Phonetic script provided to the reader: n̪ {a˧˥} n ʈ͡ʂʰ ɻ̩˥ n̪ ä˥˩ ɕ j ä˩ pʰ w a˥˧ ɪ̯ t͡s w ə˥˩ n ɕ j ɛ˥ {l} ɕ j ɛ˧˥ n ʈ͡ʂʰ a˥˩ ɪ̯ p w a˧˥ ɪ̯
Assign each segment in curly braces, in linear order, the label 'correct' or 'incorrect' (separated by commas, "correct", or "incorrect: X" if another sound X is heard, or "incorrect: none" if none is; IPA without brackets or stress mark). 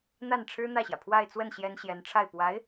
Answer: incorrect: a˥˩, incorrect: n